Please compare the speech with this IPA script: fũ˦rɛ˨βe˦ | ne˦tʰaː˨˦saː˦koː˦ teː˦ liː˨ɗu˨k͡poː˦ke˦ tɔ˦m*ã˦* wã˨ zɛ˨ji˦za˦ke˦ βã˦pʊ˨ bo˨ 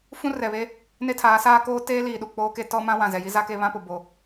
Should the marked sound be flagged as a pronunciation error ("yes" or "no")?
no